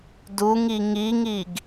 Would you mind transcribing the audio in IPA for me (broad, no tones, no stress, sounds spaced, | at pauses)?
d u ŋ i ŋ i ŋ i ɡ